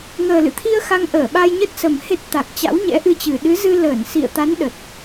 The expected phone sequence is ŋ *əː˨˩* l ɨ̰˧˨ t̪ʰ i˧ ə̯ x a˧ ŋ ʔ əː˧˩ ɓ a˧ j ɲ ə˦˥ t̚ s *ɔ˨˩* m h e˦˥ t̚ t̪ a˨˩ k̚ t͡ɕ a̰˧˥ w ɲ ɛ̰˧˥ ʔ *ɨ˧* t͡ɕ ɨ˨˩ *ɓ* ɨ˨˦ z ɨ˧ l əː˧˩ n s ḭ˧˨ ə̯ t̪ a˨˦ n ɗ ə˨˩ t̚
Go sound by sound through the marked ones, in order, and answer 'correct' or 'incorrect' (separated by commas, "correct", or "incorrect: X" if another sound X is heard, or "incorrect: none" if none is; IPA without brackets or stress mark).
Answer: correct, incorrect: ə˨˩, correct, incorrect: ɗ